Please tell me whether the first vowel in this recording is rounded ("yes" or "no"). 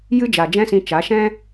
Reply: no